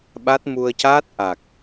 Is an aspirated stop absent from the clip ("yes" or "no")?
yes